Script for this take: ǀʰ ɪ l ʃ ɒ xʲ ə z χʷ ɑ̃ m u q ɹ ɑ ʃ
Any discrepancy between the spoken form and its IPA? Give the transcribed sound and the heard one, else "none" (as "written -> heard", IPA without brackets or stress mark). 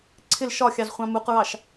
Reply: ə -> ɑ